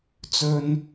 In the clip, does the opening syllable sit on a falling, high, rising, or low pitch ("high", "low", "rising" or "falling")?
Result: high